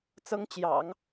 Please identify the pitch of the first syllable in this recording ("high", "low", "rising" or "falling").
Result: high